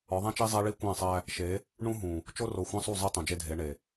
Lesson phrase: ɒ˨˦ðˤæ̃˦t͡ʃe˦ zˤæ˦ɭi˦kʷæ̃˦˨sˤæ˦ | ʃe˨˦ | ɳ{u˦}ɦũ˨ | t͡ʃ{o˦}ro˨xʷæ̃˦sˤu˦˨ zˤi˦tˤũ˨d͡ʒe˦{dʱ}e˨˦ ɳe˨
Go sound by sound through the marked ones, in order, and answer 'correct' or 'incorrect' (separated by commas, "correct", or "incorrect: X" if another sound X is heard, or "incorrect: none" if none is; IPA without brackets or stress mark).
incorrect: ũ˦, correct, correct